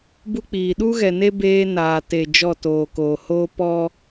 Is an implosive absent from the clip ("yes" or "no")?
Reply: no